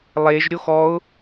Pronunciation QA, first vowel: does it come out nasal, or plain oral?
oral